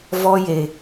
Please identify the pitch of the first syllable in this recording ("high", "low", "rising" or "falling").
high